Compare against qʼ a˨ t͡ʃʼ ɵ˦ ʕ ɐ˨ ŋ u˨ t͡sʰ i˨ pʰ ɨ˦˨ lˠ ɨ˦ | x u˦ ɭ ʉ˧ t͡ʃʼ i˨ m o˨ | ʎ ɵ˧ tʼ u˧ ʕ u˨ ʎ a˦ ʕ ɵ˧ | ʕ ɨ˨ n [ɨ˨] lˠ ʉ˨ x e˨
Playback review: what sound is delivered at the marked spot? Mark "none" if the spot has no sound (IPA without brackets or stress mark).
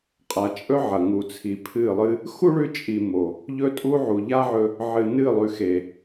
ɨ˦˨